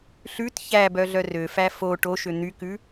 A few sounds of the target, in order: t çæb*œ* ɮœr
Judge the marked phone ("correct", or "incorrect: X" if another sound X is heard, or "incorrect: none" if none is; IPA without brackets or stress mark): correct